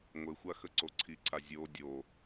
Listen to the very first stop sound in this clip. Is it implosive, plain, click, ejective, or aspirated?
click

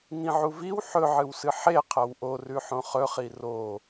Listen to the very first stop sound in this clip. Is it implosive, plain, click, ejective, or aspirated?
aspirated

